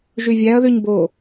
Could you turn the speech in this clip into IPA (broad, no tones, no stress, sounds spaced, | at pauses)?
ʒ y vʲ æ ɐ̯ ð y ɲ b o